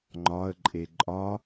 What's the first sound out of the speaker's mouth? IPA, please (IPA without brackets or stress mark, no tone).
ŋ͡ǃ